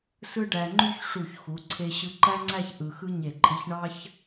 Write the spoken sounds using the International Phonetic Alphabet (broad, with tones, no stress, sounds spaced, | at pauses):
s ɯ˧ ɖ æ˧ ŋ͡ǃ y˥˧ ç ʂ u˧˩ ç x u˩˧ ǀʰ e˧ ɕ ɯ˧ ǃ æ˥ ŋ͡ǀ æ˥˧ ç ʔ ɯ˧ x ɯ˥ ɲ e˧˩ ǃʼ i˧ ç ɳ ɑ˥ ç